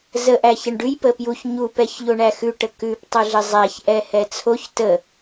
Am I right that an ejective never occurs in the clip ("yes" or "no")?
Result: yes